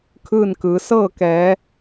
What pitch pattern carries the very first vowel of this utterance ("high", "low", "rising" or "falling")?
falling